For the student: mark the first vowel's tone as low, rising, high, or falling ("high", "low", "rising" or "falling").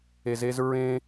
low